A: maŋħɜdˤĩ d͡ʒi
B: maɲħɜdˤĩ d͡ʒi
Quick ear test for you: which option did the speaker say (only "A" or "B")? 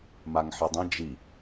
A